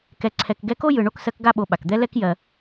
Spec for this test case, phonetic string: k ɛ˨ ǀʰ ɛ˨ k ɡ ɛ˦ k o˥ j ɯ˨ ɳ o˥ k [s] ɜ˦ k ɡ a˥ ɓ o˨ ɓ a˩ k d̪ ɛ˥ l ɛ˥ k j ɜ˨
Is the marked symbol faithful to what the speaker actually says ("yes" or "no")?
yes